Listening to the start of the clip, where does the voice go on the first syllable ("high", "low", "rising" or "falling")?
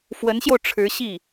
rising